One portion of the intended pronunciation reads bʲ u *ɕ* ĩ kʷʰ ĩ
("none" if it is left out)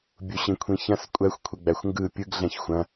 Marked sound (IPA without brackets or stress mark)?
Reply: ɕ